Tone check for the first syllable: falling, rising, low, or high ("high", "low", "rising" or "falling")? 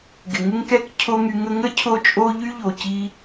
low